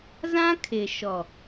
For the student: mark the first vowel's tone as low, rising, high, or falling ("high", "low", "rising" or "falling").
high